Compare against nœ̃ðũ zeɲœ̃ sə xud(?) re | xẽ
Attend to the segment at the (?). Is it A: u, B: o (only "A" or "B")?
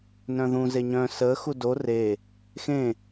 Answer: B